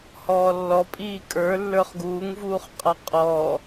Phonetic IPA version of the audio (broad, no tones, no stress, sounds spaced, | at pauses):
h ɔː lː ɔ pʼ iː kʼ ə˞ lː ə˞ χ ɡ uː ŋ v uː χ qʼ a qʼ ɔː